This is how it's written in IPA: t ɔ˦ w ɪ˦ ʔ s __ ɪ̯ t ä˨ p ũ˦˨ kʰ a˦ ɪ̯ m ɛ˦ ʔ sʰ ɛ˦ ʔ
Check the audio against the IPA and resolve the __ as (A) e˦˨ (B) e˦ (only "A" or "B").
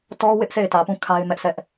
A